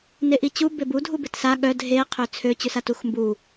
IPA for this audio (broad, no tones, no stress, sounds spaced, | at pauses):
n e ʔ i t͡ɕ u b e b u dʱ u b e t s a ɠ œ d ɦ e qʰ ø t͡sʰ ø t͡ɕ ʉ s a t u x m b u